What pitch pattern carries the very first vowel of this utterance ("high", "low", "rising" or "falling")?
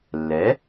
rising